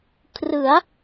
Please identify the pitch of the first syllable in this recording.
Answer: rising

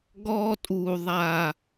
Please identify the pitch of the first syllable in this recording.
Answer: high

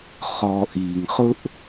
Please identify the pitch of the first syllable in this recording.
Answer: low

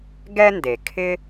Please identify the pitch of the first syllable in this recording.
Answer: high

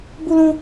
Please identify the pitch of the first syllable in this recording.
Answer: high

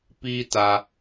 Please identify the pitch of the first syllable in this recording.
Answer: high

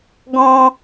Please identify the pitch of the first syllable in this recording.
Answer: high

